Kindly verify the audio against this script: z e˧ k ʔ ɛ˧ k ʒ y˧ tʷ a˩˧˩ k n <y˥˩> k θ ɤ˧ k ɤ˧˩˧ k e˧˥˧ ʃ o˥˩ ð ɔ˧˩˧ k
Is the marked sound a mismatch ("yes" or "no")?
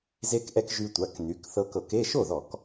yes